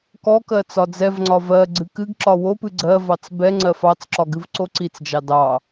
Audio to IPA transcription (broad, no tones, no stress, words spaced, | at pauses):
kɔkɜ t͡sɒd͡zɛvŋ͡ǀɒ vɜ ɡ͡ǀɨkɨɡǁɒ wopɨ ɡ͡ǀɜvɑt͡s bɛŋ͡ǀɜ fɑt͡sǁɒ ɡɨvǀoǀit͡sd͡ʒɑ dɑ